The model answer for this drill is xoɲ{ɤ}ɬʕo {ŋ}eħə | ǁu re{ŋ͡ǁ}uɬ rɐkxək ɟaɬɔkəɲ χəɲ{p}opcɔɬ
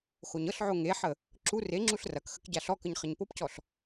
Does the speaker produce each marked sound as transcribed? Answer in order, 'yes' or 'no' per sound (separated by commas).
yes, yes, yes, yes